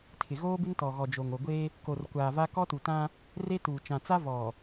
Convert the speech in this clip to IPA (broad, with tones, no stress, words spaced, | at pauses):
tʰɪ˨ ɣoː˦bɪ˦ntɔ˨ɣɔ˨ d͡ʒo˨ŋo˨ɡʷe˦ | ko˨rkʷaː˨va˦ kɔ˦tu˨tã˦ | re˦tuː˨ t͡ʃã˨t͡sa˦ vɔ˨